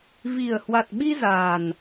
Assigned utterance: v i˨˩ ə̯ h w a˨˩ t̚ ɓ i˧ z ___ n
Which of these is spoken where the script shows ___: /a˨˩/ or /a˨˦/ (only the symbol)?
a˨˩